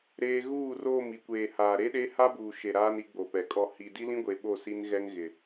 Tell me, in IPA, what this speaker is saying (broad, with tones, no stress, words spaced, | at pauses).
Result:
ɾeː˦ ɣuː˦˨roː˦˨m i˨kʷeː˨haː˨ ɾe˦ɗe˦ ha˦buː˨ ʃe˨ ɾaː˦ni˨˦ɡ͡bo˨pɛ˨ kʼɔ˨ hi˨di˦lĩ˦ɡʷe˨ ɓo˦˨ si˦nɣɛ˦ŋɣɪ˨